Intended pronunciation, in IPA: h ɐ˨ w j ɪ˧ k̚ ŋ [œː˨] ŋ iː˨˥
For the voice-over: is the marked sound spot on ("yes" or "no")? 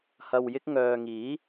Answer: yes